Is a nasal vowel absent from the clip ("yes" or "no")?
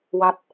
yes